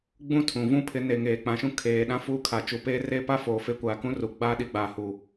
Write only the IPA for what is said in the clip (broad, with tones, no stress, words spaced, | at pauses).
ɡ͡bũ˦tʰũ˨ vũ˦˨pʰɪ˨˦ne˨ ŋeː˨ k͡pã˨ʃũ˦ kʰeː˨ɗã˦ fu˦ kʰa˨t͡ʃu˨˦peː˦ reː˦ pa˦ foː˨fe˦ kʷaː˨kũ˦ru˨ ɡ͡baː˦ɗi˨ɡ͡baː˨ hu˨